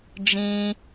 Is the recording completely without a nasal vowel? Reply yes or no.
no